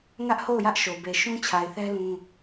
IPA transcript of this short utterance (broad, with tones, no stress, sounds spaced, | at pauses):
ŋ ä˦ ʔ h o˦˨ ʊ̯ j ä˦ ʔ ʃ o˨ b e˨ ʃ ũ˦ t͡ɕʰ a˨ ɪ̯ θ ɛ˦ l ũ˦